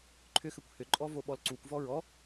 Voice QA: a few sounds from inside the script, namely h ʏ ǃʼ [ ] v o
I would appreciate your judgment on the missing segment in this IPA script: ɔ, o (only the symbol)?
ɔ